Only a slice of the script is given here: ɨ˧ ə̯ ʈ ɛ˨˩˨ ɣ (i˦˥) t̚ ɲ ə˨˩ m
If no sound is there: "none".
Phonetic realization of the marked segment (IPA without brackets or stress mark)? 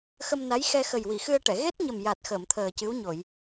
e˦˥